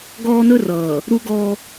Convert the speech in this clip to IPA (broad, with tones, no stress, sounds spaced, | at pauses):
ɡ ɔː˦ n ɵ˦ r ʌː˨ | ɾ u˦ ɡ ɔ˦